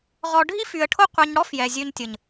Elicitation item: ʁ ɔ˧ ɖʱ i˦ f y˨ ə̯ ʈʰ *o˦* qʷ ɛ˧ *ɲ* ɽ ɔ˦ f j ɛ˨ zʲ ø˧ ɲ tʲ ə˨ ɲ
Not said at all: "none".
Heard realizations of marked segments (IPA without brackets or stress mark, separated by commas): o˦, ɲ